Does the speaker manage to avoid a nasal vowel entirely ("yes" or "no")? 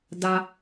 yes